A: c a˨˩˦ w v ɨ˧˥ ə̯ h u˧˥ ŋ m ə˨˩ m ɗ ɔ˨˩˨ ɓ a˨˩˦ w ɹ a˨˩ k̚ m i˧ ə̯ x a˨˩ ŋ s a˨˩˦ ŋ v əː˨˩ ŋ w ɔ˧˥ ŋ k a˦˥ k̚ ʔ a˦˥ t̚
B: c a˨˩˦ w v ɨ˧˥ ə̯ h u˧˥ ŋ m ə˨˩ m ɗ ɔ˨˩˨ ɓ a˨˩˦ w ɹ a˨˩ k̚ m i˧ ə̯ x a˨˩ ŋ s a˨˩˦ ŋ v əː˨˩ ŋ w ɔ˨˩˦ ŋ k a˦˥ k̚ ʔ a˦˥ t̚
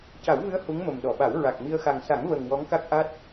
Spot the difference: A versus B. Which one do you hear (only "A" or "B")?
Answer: A